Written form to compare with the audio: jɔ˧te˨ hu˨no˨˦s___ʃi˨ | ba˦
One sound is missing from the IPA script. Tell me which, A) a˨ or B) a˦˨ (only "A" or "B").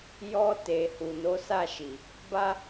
B